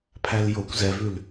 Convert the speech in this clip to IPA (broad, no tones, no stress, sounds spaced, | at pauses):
pʰ æ l j o kʷ z ɛ v ʉ l